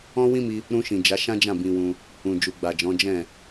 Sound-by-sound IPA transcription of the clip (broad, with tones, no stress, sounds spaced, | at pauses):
ɔ̃˦ w ĩ˦ m i˧ | ɾ ũ˧ ʃ ĩ˨ d͡ʒ a˨˦ ʃ ã˦ d͡ʒ ã˦˨ b ĩ˧ w ũ˧ | ũ˨ d͡ʒ u˨ ɡ͡b a˨ d͡ʒ ɔ̃˨˦ d͡ʒ ɛ̃˦˨